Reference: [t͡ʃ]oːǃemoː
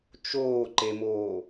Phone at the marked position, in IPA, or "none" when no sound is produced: t͡ʃ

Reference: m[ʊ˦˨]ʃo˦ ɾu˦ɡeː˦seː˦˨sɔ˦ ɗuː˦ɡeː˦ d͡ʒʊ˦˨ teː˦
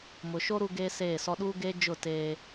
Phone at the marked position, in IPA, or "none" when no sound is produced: ʊ˨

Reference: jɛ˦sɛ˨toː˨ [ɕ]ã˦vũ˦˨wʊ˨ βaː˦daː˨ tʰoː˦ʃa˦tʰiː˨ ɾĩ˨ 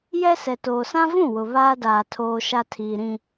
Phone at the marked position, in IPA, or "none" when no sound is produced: s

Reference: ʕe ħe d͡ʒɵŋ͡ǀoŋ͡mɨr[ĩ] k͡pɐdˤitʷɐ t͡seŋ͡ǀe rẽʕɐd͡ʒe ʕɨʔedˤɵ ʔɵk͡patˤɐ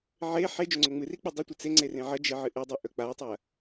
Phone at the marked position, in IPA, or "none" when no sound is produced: i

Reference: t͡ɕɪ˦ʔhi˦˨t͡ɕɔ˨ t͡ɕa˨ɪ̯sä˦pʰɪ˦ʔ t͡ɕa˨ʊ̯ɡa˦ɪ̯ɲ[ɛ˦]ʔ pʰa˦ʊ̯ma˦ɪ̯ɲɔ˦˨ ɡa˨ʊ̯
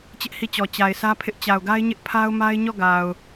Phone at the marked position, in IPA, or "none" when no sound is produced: ɪ˦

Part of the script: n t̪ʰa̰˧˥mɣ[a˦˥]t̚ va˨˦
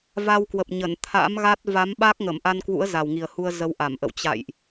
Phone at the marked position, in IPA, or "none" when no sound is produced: a˦˥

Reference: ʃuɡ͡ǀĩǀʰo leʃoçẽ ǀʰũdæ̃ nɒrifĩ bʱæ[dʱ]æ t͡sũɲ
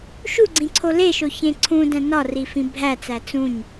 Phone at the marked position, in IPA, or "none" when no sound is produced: t͡s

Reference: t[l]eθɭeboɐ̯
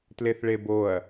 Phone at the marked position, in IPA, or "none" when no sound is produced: l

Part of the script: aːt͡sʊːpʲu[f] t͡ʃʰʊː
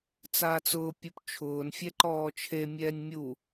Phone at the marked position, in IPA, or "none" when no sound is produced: p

